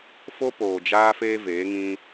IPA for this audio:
fo˦poː˨d͡ʒaː˦feː˦ veː˨˦ŋĩ˦

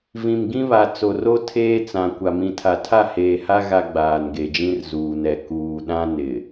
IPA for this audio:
vĩ˨mɡĩ˦βa˨ t͡so˨ro˦ tʰeː˦t͡sã˨ kʷa˨mĩ˨tʰa˨ tʰa˦˨heː˨ha˦ ɣa˦ɡ͡baː˨nɡe˨d͡ʒĩ˦r zuː˨nɛ˨ kuː˨ɗã˦ nɪ˨

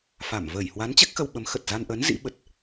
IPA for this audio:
fa˧˩m vəː˧˩jhwa˨˦n t͡ɕɛ˦˥k̚xə˧wɓə˨˦m xə˨˩t̚za˧nʔəː˨˦n zḭ˧˥ɓə˨˩t̚

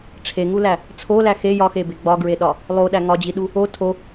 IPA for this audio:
ʈ͡ʂʰeŋulæ | t͡sʰolæ xe jɒxebe ɡ͡bɒɡɹeɗɒ | lˠoɗæ ŋɒd͡ʑiɗu | o tʰo

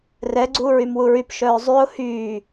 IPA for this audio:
rɛɡ͡ǀuːɹym wuɹypʃœː zˤyʊ̯ hyː

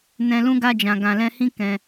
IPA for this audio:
nɛ̃˧lũ˦ ɡa˧d͡ʒã˨ɡã˨lɛ̃˧ hĩ˦ kɛ̃˧

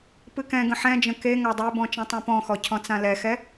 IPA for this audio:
pɨkɛ̃ɡə̃ ħɛ̃d͡ʒə̃ ke ŋadˤebɔ̃ t͡ʃɛ̃tˤãpɔ̃xɔ cʰɔ̃t͡sãlɛxɛ

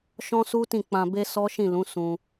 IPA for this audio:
ʃɔ̃˦su˦ tĩ˦˨k͡pã˧be˦ sɔ˦ʃĩ˦˨lũ˨˦ sũ˧

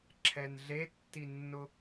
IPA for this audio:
ǁʰɛnɮetːinːʊ

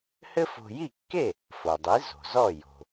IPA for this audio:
hɘ˥fo̤˧ ji˥˩kːe˥˩ | fo˩dˤi˩˥ zo̤˩zɔ˥˩jo̤˩

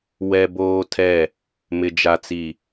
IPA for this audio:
wɛ˦boː˦tʰɛ˦˨ | mɪ˨d͡ʒa˨t͡si˨

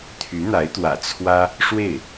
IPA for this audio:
t̪ʰy˧˥n̪a˧˥ɪ̯t̪wä̰˨˩ t͡sʰwä˥ | ʂwe˥˩ɪ̯

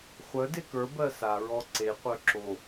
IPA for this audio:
χʷœ dekə˞ bɜsa ɹɔǀeqʷœ ǁo

